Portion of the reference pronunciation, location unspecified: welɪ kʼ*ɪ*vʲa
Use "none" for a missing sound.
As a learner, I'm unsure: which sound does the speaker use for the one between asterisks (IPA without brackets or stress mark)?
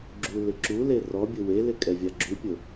ɛ